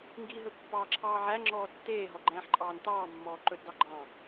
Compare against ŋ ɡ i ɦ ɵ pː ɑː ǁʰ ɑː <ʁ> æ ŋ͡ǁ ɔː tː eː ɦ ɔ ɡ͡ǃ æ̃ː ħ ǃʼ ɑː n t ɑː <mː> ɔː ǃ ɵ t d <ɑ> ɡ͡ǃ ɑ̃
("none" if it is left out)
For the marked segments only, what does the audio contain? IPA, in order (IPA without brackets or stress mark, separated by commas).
ʕ, mː, ɑ